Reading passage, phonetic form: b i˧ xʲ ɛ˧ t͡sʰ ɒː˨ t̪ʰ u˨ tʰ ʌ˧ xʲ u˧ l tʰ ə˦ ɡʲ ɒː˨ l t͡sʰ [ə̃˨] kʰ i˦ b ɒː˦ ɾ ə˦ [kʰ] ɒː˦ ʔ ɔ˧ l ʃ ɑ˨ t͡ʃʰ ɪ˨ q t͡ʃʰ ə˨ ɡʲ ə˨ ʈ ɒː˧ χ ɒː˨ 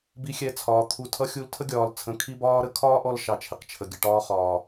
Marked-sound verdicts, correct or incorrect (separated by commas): incorrect, correct